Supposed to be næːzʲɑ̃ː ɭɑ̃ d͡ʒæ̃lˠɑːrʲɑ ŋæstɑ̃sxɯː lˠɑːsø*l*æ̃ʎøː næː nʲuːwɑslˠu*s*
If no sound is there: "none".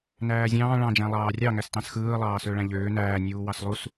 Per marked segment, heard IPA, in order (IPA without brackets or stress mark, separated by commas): ɭ, s